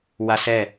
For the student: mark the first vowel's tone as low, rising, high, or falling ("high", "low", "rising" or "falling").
high